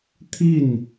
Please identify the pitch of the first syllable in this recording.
falling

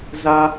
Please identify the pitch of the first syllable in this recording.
high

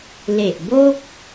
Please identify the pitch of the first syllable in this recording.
low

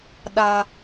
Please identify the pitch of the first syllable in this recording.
low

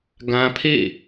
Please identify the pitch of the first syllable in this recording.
high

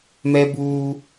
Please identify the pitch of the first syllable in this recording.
high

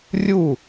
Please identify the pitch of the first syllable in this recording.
falling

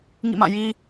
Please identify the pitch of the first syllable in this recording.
falling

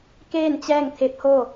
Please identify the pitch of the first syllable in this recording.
falling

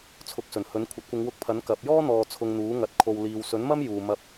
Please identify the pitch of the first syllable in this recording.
rising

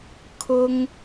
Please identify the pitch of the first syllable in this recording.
high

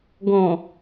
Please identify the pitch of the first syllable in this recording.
low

